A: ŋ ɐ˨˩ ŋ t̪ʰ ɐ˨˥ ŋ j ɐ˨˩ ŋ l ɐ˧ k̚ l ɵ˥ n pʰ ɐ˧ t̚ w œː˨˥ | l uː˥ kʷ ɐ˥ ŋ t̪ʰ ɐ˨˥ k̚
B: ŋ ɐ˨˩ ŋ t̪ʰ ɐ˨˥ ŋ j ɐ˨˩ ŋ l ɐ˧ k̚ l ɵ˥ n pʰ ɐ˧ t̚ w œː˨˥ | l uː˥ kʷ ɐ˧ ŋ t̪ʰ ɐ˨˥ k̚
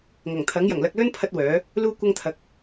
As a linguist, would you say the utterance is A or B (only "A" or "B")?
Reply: A